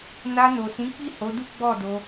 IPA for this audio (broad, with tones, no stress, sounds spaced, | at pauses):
n a˧ n o˨ s ĩ˨˦ k͡p i˦˨ h o˨˦ d u˦ ɡ͡b ɔ˦˨ d o˧